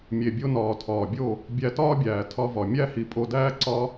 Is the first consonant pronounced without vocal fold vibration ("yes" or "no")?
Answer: no